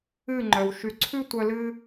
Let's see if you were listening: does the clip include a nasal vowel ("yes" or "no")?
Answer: no